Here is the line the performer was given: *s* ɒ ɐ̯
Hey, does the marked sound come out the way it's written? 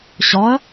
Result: no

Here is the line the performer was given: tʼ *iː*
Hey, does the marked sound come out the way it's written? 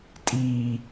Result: yes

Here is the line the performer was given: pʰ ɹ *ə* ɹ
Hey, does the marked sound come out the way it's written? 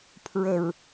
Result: yes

